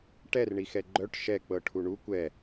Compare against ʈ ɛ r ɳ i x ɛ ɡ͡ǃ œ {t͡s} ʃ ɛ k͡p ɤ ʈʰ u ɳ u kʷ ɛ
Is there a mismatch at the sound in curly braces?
yes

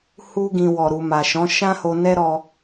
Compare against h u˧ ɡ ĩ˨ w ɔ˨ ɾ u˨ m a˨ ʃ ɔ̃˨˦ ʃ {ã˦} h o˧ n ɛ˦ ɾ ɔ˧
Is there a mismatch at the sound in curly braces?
no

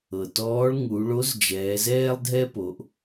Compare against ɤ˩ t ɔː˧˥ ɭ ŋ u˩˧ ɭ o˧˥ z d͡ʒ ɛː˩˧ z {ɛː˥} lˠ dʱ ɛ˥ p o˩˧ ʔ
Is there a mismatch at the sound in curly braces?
no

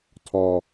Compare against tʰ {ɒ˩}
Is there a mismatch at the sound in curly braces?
no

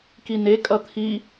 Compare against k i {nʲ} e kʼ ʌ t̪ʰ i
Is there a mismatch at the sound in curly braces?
yes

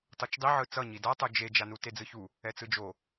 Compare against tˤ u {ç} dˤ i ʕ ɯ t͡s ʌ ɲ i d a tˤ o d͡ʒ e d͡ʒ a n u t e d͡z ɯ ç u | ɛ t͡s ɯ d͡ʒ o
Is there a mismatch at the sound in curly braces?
yes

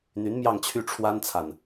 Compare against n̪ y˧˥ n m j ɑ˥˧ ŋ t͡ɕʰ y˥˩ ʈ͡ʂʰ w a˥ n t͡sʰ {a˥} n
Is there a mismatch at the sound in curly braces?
yes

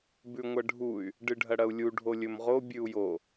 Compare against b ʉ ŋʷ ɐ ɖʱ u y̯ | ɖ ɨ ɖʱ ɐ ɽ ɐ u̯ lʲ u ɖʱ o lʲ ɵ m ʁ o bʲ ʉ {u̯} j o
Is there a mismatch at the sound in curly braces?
no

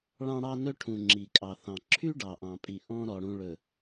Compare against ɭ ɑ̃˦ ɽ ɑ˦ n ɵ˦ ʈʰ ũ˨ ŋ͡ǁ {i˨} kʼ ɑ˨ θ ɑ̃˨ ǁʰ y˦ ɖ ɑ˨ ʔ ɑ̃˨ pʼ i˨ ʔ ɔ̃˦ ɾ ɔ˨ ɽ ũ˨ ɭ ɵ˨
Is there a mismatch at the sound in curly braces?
no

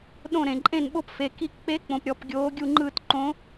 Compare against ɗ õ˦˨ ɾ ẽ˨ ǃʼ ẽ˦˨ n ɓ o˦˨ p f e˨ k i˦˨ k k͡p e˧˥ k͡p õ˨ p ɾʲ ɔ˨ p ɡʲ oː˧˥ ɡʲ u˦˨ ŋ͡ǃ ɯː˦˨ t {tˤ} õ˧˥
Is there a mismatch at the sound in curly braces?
yes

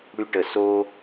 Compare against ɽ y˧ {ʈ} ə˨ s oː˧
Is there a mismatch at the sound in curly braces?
no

